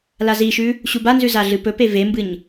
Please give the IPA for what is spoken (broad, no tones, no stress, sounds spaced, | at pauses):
l a z i ʃ ʉ | ɕ u b a n z ʉ z a ɮ ɨ p ɵ p e v e m b ɨ ɲ